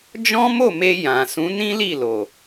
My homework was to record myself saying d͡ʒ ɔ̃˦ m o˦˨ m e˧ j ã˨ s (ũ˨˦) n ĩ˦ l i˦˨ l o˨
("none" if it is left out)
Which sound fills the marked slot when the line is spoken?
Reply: ũ˨˦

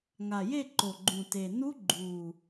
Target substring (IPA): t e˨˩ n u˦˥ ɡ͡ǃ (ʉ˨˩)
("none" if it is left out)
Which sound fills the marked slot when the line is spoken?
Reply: u˨˩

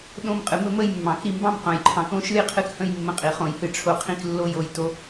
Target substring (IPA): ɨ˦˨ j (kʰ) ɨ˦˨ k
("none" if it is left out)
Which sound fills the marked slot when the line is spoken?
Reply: qʰ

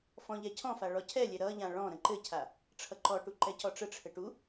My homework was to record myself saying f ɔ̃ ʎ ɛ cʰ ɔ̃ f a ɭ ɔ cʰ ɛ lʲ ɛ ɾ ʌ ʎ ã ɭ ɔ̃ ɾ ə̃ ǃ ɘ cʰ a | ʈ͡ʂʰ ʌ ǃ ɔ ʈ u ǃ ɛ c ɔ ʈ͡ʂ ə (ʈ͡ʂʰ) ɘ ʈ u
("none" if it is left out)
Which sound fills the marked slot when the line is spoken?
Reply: ʈ͡ʂʰ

